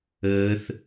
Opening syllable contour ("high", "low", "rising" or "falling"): high